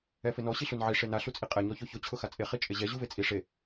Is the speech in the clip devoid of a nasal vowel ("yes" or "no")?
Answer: yes